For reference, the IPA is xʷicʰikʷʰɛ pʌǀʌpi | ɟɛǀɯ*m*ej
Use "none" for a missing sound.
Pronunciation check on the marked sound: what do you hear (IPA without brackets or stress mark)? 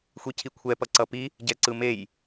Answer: m